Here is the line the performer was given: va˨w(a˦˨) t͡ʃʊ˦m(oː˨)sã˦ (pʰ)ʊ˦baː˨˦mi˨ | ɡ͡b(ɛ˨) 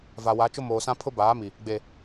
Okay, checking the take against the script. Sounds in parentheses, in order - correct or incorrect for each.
incorrect: a˨˦, correct, correct, incorrect: e˨

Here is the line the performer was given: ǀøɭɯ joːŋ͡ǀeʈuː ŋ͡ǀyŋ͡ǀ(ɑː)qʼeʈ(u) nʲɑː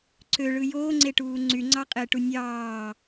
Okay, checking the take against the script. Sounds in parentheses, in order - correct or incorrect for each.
incorrect: ɑ, correct

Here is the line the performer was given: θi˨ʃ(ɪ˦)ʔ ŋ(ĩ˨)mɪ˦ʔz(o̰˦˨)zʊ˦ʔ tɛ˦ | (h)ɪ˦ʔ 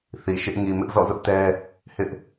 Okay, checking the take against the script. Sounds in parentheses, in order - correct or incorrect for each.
correct, incorrect: i˨, incorrect: ɔ̰˦˨, correct

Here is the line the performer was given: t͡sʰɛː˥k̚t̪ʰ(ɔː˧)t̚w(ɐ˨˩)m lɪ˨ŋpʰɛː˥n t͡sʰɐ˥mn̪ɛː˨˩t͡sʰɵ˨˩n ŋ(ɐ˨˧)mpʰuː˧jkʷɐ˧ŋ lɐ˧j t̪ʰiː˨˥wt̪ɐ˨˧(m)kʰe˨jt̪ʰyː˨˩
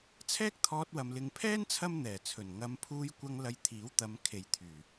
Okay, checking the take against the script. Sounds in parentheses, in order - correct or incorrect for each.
correct, incorrect: ɐ˨, correct, correct

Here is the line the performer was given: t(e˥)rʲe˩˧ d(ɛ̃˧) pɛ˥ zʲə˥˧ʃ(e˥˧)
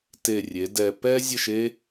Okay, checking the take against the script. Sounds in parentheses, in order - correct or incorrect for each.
incorrect: e˧˩, incorrect: ɛ˧, incorrect: e˥

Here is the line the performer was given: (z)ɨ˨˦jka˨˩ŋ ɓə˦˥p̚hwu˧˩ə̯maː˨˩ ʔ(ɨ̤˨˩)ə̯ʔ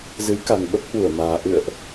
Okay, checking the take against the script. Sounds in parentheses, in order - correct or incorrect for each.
correct, incorrect: ɨ̰˧˨

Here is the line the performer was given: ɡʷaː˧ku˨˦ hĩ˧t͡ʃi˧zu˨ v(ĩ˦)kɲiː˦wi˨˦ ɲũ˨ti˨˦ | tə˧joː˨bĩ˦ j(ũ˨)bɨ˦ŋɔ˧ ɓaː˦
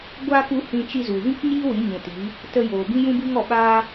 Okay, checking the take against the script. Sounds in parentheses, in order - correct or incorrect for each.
correct, incorrect: ũ˦

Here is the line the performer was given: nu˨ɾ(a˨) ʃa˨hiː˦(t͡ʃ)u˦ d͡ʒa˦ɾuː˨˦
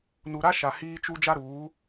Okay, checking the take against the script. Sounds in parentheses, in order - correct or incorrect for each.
incorrect: a˦, correct

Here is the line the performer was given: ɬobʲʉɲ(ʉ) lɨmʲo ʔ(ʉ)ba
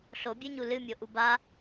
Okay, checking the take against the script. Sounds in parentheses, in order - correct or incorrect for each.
incorrect: u, incorrect: u

